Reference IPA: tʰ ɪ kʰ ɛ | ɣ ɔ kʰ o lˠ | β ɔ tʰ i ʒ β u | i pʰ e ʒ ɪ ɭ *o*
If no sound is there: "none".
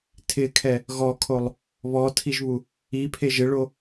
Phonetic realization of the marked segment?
o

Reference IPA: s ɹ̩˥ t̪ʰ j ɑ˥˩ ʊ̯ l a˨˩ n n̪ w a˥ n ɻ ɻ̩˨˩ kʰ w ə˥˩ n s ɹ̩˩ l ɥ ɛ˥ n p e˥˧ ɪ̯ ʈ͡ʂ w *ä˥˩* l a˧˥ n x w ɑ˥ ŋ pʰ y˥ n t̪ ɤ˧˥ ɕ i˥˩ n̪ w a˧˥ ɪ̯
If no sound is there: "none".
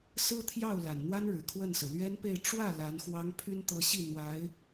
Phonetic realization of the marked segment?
ä˥˩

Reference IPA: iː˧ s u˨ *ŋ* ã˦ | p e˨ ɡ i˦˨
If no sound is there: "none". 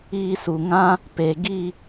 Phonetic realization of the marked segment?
ŋ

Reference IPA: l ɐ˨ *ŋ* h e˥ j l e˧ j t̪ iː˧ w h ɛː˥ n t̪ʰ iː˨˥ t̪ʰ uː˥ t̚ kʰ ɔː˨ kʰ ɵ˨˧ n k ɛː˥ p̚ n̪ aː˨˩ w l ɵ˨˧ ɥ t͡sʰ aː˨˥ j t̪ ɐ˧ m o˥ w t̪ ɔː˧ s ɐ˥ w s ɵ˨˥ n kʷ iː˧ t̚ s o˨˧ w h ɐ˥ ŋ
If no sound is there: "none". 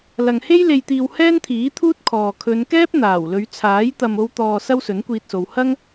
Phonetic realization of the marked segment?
ŋ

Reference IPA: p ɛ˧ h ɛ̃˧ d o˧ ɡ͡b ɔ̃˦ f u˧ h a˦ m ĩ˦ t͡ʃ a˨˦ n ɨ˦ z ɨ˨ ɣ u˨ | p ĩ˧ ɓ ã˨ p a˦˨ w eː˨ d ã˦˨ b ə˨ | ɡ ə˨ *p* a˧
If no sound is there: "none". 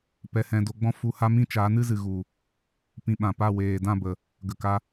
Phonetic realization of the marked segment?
k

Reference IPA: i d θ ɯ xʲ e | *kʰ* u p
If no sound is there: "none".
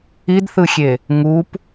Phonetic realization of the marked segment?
ŋ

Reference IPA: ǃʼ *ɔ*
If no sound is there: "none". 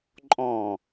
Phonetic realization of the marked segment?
ɔ̃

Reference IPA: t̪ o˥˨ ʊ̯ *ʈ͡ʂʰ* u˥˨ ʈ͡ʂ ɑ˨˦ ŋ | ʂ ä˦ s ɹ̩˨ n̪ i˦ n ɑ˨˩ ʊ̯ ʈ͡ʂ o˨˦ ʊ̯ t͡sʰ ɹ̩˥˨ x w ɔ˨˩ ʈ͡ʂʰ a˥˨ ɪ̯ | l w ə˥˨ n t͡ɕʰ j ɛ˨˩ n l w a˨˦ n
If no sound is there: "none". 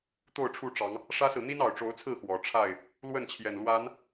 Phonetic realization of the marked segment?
ʈ͡ʂʰ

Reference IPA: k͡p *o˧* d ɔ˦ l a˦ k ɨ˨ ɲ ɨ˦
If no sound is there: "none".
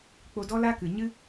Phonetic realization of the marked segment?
o˧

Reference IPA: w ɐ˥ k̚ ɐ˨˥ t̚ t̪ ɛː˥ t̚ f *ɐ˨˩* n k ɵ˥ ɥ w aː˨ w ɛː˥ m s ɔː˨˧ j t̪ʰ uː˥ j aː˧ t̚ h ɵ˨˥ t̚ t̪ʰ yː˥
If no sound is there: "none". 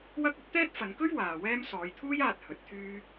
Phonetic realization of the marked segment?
ɐ˨˧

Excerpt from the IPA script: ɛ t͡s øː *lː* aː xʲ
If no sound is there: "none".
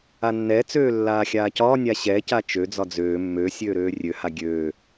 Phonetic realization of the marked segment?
lː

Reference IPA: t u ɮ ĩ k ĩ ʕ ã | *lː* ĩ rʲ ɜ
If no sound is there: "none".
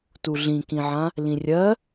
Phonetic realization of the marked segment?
l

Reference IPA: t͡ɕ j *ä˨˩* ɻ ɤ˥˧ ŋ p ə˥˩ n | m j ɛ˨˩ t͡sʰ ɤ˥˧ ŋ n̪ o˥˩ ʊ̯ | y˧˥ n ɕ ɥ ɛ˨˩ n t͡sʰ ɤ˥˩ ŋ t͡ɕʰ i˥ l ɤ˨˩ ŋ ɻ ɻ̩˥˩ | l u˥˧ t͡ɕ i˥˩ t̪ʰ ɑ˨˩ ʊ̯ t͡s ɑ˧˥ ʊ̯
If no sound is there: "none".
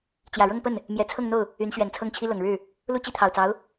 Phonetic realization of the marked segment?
ä˨˩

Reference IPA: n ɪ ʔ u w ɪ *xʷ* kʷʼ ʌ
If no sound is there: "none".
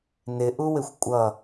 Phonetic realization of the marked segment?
xʷ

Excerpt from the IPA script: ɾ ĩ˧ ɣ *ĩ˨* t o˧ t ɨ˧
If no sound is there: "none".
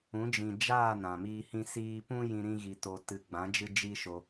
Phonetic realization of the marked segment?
i˨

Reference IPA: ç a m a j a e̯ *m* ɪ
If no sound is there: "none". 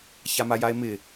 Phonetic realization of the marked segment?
m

